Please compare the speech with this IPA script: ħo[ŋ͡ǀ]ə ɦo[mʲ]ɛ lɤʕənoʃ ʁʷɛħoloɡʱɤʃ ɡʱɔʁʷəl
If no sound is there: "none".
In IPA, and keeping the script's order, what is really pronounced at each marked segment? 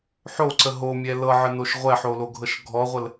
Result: ǀ, mʲ

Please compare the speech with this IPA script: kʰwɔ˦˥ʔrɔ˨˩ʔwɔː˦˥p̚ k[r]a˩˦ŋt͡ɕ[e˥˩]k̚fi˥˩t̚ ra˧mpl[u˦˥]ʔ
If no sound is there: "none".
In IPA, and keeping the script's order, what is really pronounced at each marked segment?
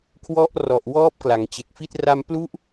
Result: l, e˨˩, u˦˥

